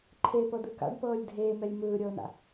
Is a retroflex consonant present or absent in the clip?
present